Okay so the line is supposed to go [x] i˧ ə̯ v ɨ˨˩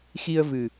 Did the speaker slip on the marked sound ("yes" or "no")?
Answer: no